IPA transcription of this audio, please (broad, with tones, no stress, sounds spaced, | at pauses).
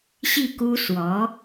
ɕ i˥˩ k u˥ s w ɔ˧˥